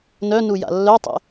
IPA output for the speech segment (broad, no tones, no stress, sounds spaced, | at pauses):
n œ n u j a̰ lː œ tˤ ḛ